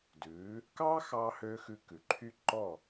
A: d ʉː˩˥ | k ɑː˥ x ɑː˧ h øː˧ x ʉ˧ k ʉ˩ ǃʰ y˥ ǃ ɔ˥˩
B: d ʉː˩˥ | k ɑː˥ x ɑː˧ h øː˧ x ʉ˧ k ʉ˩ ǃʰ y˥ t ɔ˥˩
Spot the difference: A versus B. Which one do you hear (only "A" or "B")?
A